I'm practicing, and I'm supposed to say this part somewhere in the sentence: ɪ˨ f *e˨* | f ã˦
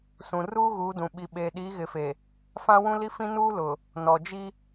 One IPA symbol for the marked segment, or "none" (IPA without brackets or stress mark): e˨